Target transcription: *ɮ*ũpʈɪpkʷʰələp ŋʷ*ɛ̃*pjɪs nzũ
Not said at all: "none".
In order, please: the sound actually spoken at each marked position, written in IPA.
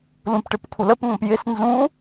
l, ɛ̃

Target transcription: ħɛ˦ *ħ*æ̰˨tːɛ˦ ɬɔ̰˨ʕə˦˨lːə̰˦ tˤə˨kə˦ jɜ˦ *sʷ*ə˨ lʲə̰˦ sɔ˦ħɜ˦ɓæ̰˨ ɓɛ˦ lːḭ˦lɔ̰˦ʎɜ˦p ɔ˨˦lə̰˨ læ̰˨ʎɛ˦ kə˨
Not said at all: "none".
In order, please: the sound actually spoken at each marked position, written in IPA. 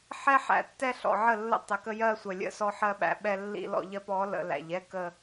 ħ, sʷ

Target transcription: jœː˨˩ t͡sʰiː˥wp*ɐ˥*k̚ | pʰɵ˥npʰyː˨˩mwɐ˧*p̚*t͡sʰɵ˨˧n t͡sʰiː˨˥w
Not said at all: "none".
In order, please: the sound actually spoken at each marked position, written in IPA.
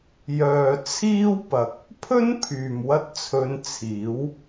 ɐ˨˥, t̚

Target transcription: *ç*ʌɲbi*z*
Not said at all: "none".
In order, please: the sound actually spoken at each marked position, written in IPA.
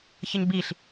ç, ɬ

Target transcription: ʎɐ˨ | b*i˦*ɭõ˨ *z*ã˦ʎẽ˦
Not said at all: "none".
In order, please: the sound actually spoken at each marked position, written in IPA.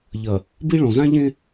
i˦, z

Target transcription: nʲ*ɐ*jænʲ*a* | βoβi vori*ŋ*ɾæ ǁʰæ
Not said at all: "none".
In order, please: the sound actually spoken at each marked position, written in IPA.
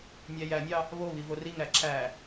æ, ɑ, ŋ

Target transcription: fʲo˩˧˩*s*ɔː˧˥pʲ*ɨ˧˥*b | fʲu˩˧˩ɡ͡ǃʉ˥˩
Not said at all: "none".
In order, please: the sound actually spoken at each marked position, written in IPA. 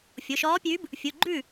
ʃ, ʉ˧˥

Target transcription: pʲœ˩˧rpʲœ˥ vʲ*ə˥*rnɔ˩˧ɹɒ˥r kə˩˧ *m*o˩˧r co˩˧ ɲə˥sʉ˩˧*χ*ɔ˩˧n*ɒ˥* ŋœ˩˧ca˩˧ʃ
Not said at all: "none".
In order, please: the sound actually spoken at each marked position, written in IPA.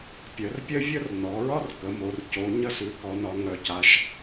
ə˥, m, k, ɒ˩˧

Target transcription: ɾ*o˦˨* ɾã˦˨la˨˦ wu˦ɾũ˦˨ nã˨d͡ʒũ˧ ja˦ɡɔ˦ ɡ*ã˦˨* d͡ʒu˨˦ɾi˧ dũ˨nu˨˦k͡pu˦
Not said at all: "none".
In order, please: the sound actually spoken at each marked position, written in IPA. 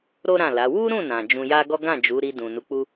o˦, ã˦˨

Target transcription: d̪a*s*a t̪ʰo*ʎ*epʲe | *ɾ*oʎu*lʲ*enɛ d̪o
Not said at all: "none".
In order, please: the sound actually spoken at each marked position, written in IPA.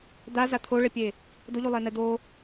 z, ɭ, d, lˠ

